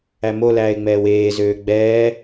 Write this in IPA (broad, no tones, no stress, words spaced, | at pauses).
æmolæːɪ̯ŋ͡mɛːw eːzøː ɡ͡bɛː